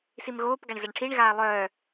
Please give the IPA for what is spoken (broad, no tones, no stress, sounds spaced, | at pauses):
s i m ɣ oː p ɡ a ɳ z a ɳ ʈʰ i ɳ ɣ aː lˠ œː